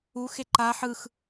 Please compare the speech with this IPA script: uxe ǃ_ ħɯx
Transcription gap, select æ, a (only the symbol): a